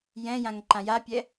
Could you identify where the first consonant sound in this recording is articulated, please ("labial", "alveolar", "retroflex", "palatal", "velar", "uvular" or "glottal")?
palatal